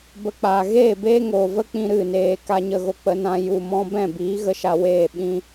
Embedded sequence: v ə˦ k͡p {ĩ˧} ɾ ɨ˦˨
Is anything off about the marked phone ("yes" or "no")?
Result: no